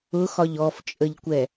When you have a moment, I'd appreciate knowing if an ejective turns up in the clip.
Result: yes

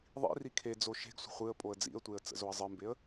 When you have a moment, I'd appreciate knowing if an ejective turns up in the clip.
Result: yes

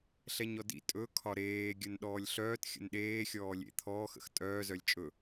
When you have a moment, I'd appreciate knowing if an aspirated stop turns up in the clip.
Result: yes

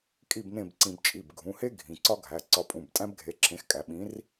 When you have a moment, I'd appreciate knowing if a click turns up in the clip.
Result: yes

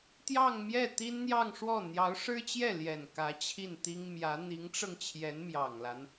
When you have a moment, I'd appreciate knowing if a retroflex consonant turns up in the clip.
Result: yes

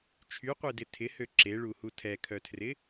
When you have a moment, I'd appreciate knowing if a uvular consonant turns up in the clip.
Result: yes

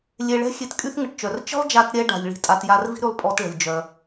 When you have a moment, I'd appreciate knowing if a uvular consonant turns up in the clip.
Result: no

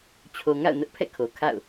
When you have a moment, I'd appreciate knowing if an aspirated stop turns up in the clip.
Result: yes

